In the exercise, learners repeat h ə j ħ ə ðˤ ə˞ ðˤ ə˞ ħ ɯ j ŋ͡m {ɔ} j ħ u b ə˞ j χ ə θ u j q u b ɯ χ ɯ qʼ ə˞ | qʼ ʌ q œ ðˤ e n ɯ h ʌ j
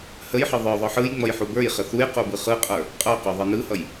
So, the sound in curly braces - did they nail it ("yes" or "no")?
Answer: no